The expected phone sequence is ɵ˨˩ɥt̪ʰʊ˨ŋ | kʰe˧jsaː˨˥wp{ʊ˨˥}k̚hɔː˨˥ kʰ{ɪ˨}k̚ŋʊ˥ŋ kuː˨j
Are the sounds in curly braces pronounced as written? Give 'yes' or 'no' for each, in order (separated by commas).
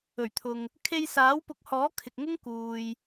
yes, yes